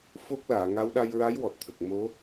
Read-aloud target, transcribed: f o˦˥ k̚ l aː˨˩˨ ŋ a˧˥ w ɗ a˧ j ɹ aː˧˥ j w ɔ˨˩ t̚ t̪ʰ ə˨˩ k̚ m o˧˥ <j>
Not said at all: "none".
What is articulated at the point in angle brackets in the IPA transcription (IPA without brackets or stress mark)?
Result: none